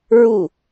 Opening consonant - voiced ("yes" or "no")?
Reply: yes